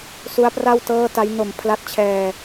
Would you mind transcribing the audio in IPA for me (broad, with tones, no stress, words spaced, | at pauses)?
su˦˥a̯pra˥˩wtɤː˥˩ta˦˥j no˩˦m pʰla˦˥t̚t͡ɕʰɛː˧